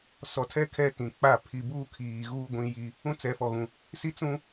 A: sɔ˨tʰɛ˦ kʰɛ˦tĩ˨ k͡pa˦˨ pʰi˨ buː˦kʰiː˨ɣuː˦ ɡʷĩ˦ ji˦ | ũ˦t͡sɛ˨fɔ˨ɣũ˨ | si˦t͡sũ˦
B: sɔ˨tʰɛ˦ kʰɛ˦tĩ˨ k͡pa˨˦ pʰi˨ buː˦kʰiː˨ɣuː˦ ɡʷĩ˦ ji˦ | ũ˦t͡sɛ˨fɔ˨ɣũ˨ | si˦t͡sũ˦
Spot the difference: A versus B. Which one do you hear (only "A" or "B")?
A